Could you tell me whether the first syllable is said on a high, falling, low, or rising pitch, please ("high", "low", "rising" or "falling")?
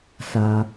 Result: high